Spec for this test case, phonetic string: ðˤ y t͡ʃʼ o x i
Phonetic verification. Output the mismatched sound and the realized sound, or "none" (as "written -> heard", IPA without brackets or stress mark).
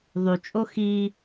none